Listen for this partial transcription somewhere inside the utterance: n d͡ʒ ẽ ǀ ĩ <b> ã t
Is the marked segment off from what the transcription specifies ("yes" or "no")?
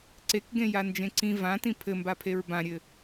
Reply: yes